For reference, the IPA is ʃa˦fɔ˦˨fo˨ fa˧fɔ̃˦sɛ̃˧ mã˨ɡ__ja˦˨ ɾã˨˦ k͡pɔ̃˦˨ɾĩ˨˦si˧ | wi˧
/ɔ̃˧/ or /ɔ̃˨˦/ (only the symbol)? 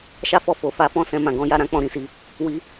ɔ̃˨˦